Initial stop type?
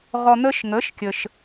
plain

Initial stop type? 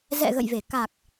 plain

